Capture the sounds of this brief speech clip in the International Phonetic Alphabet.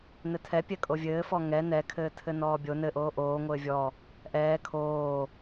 nɘtʰɛ pʲɛkʼovʲɘːfɔ ŋɛ nɛkʰɘːtʰɘ nɔːbʲo nɘʔoː ʔoː ŋʷɘːvʲɔ | ʔɛː kʰoː

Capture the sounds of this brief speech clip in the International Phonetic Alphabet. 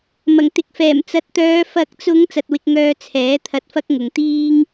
mɐ˨˩ŋ t̪ɪ˨k̚fɛː˨˩m t͡sɐ˨˥t̚t̪œː˨˧ fɐ˨˥k̚t͡sʊ˨˧ŋ t͡sɐ˧t̚wɪ˧k̚ŋœː˧ t͡sʰɛː˨˥ t̪ʰɐ˧t̚fɐ˥k̚ ŋʊ˨ŋt̪iː˥ŋ

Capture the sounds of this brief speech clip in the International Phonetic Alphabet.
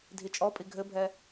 dʱit͡ʃʼɔpʼi ɡʱɘbʱɛ

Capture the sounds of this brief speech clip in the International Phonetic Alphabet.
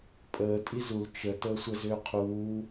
pʼəː tʼizul t͡ʃə təːsʷə zʏːqʰuː

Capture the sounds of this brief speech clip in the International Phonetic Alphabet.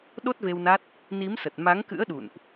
ɗo˦˥t̚ve˧wna˦˥t̚ | ni˨˦msə˨˩t̚ ma˨˦ŋkɨ̰˧˥ə̯ɗṵ˧˨nʔ

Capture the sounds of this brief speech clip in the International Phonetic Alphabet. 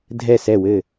dʱɛ˧˩sɛ˧˩wɘ˧˩

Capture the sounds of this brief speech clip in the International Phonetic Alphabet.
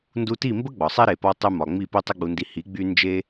ndu˧ti˦˨mbə˦ ɡ͡bɒ˨sˤe˦ɾe˨ pɒ˧tˤy˧mɒ˨ŋ͡mi˦˨ pi˦tˤe˦ɡ͡bu˧ndi˧ hi˨˦ ɡ͡by˦ nd͡ʒe˦

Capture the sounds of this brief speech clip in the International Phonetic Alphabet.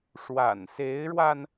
ʂwa̰˨˩nse˧˥ɪ̯ɻwa˧n

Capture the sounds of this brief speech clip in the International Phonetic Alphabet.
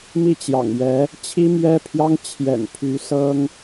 mi˥˩t͡ɕjɑ̰˨˩ŋɥɛ˧˥ | t͡ɕʰi˥mɥɛ˥pʰjɑ˥ŋ t͡ɕʰjɛ̰˨˩npʰy˧˥ sɤ˥ŋ

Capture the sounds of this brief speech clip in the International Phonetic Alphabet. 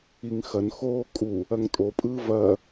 iŋxɐnxoː kʼu | ɐŋtʼopʼɯː vɐ

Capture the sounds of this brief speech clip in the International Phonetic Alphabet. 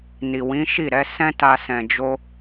ni˨wĩ˨˦ʃi˦˨ɾɛ˨˦ sɛ̃˦ta˧ sɛ̃˨d͡ʒo˧

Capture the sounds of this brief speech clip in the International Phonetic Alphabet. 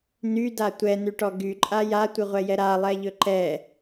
nyda tʷɛnyʈɔ ɡyǃʼa jatʷɨʁʷɛjɛ ɾalˠɛʎɵ ǃɛ

